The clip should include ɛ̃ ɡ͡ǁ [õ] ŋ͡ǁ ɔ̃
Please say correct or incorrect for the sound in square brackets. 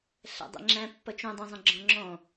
incorrect